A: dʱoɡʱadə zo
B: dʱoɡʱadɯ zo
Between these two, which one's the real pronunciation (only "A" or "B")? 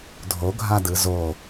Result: B